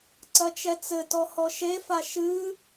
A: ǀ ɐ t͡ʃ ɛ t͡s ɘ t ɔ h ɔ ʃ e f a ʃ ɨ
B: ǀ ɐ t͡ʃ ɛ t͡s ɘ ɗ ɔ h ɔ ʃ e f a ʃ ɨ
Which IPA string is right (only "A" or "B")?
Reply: A